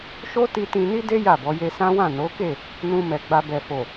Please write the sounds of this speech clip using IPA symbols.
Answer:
ʃo˦ti˧ tĩ˧ni˦de˦ ja˦˨bɔ˨˦ je˧sã˦wã˦˨ no˨˦ke˦˨ | nũ˧mɛ˨ɡ͡ba˧ bɛ˨fo˨

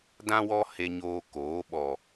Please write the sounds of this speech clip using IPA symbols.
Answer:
dã˦wɔ˦ he˧ɲoː˧ koː˨˦ ɓɔ˨

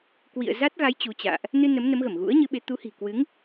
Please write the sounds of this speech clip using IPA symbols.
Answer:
kwḭ˧˨ə̯za˦˥t̚ɣa˨˦j t͡ɕu˨˦t͡ɕa̰ː˧˨ʔ | nɨ˧ nə˨˦mnə˨˦mɣə˧˩m ɣṵ˧˥ə̯ɲɨ˨˦ɓe˨˦ t̪u˨˦hi̤˨˩kwɨ˨˦ŋ

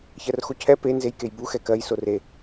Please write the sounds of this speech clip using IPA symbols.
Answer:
çɜrxocʰɛ pe nzejkejbu xɛkɜj sore

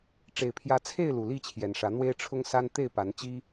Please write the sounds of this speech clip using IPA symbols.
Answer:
ʈ͡ʂe˨˩ɪ̯pʰjä˨˦t͡sʰe˥˨ɪ̯ lu˨˩li˥˨t͡ɕʰjɛ˨˩nʂä˨˦ n̪we˦ɪ̯ʈ͡ʂʰʊ˦ŋsa˦n t̪e˥˨ɪ̯pa˨˦n t͡ɕi˦

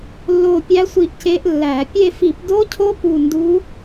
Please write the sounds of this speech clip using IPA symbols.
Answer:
lːo˦˨pʲæ˦˥ sʷi˦˨ʔce˦˥ʔlːæ˧˩˧ pʲe˦˨fi˧˩˧pdo˦˥cʰo˦˥ pu˦˨ndu˦˥

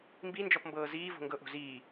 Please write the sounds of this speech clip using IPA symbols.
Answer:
mbind͡ʒɔpmbɤː ziːvo̤ŋɡɤʔo̤ ziː

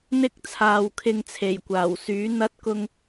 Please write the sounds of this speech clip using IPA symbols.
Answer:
n̪ɪ˧k̚ t͡sʰaː˨wkʰɪ˧ŋt͡sʰe˨˩jkʷaː˨˩w syː˨˥n̪ɐ˥t̚kʊ˥ŋ

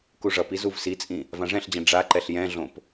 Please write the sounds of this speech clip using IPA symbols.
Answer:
kuʐʌpi zuvsit͡sʼĩ | vãʐɛ̃ɬd͡ʑɛ̃ ɖ͡ʐaǃɛɬ jɛ̃ɮõp

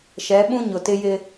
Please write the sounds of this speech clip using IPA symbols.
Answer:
ʃɛ˨˦ɓũ˦ ɲʊ˨tɪ˦jɪ˦

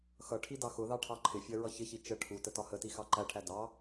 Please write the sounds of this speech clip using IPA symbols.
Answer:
xʌ ʈʰidɑxʊðɑ ʈʰɑǃʰɪfʲɜ ɹʌçɪçi t͡ʃə ʈʰutə tɒhəti xɑǃæʈʰæ dɑ

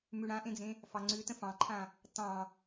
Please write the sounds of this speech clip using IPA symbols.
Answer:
mʉɽãʔẽd͡zẽ | fɑŋ͡ǀʉtə̃ fɑ̃ǃʰã | tɑ̃

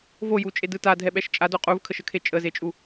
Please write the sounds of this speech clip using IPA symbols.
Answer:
vojut͡ʃʼedɯ tadʱɛɓɛʃ t͡ʃʼado qʼuvkʰəʃəkʰe t͡ʃʼəzet͡ʃʼu

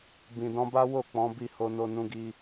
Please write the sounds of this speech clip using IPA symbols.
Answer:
bĩ˨dɔ̃˧ba˦wo˦˨ k͡pɔ̃˨˦bi˦˨ ho˧no˧nũ˧ɡi˧

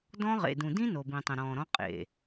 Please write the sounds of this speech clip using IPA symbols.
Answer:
dɔ̃˦ʁḛ˨ dũ˨dĩ˦ no˨bĩ˨tˤə̃˨ ɾɔ̃ː˨ ɾɔ̃˦ qʼḛ˨

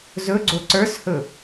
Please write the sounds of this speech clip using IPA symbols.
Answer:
zɵɡ͡ǀo ǀə˞shɵ

